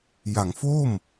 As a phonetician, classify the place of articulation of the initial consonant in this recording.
palatal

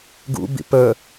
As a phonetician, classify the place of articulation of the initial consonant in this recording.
velar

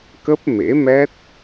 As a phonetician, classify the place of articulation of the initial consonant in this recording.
velar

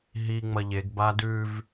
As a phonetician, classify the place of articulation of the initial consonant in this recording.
glottal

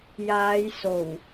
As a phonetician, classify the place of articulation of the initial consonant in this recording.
palatal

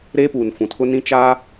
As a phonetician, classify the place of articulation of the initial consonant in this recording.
alveolar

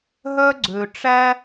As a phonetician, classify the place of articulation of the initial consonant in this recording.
glottal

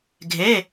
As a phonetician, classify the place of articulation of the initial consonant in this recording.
velar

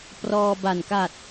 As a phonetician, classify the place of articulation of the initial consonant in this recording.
labial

